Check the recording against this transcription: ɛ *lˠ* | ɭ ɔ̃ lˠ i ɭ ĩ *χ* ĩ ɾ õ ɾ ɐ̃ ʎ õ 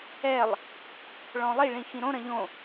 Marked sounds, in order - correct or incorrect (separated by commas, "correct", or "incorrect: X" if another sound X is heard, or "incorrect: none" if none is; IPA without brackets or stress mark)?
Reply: correct, incorrect: x